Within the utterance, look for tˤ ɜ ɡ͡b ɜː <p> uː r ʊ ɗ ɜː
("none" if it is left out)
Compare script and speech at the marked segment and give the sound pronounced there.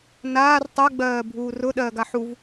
bʱ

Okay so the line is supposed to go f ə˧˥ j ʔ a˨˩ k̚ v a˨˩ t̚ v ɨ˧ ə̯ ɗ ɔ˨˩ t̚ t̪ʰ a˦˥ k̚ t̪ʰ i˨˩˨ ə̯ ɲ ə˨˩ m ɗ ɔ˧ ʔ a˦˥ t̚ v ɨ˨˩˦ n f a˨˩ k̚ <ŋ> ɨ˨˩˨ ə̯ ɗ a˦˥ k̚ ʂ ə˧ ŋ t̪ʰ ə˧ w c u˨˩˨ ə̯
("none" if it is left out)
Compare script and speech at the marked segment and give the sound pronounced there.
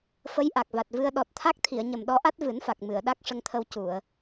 m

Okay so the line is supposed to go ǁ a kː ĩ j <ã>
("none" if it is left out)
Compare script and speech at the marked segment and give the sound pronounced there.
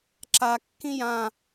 ã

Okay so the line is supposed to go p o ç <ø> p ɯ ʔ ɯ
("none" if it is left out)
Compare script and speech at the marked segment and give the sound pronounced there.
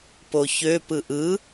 ø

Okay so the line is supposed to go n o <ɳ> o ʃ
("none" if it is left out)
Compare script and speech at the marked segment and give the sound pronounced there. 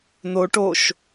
ʈ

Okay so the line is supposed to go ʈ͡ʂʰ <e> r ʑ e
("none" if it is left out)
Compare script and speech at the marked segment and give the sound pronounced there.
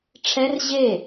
ɛ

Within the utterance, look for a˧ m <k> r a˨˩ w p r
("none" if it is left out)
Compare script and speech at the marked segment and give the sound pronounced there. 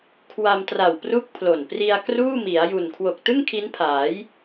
t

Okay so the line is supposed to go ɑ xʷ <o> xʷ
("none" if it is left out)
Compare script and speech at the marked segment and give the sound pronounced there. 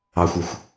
o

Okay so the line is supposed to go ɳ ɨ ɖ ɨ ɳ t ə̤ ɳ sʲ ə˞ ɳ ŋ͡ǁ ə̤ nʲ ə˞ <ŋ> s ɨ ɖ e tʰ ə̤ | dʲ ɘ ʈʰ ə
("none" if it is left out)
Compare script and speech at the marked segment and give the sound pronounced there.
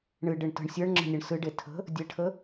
ɳ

